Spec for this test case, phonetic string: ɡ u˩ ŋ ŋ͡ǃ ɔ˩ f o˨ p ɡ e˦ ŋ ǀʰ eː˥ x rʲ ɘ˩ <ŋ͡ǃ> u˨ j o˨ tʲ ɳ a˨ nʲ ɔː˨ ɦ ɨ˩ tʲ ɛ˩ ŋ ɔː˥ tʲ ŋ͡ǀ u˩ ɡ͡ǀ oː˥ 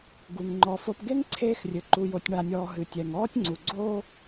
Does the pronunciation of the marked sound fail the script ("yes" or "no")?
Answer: yes